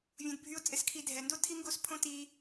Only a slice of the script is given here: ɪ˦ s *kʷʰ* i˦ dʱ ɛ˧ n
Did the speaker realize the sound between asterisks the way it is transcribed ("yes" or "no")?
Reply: no